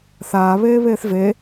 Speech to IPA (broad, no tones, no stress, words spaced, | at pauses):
θaː βeːβeːθve